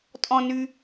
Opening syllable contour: low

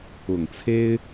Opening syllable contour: low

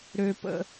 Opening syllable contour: low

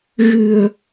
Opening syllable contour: low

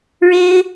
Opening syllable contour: high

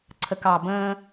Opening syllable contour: low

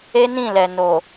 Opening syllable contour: high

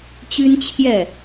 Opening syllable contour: high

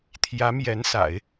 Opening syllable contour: rising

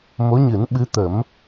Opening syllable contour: rising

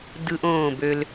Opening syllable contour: high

